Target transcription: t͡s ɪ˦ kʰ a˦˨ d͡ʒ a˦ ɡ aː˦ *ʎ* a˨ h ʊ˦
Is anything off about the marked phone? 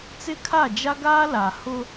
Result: yes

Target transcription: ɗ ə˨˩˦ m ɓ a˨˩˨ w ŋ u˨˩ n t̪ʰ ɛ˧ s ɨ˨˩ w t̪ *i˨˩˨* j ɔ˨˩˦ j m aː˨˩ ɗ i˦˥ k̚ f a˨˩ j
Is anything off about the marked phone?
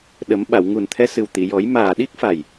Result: no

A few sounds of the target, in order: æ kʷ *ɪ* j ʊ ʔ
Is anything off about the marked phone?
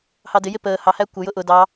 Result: yes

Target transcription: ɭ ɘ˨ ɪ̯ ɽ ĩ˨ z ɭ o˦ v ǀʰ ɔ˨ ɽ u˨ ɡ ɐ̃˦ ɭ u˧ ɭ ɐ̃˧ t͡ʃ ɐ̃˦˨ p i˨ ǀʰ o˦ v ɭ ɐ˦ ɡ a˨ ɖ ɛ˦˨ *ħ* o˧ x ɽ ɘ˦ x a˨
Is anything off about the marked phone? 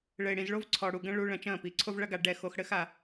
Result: yes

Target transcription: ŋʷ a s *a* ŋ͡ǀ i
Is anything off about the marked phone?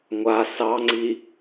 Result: yes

